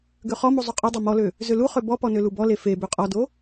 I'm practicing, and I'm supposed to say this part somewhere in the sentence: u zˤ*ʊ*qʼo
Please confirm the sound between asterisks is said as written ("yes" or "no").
no